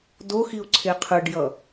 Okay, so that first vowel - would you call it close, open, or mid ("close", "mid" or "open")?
mid